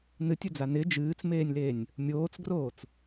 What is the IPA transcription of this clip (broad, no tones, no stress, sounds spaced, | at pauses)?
n ɨ tʲ ɵ d͡z a n ɪ d͡ʒ ɨː t͡s m eː nʲ l eː nʲ | mʲ oː t͡s ɡ r oː t͡s